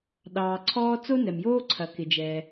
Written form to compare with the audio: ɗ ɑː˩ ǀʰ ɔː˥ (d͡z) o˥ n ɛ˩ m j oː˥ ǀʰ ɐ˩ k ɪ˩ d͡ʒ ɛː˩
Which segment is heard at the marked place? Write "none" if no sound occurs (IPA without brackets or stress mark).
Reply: t͡s